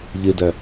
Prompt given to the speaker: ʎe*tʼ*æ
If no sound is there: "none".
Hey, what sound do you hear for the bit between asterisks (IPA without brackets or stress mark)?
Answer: d